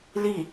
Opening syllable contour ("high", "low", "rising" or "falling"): falling